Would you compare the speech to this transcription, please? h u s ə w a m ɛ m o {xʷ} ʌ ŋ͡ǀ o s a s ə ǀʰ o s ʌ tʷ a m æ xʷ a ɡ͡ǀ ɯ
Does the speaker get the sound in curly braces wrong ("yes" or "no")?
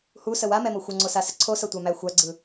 no